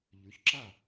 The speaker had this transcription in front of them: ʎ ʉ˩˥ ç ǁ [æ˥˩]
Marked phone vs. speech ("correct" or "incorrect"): incorrect